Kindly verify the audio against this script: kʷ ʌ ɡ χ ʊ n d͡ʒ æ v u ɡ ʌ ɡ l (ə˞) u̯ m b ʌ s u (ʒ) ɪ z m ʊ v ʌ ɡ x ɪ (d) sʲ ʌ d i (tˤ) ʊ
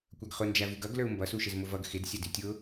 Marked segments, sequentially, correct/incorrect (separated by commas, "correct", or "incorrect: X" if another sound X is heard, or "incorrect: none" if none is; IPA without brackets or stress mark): correct, incorrect: ʃ, correct, incorrect: tʲ